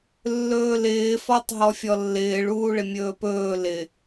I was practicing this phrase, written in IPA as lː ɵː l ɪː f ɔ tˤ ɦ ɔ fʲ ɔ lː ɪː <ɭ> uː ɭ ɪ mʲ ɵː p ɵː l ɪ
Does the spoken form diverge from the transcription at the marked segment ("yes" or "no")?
no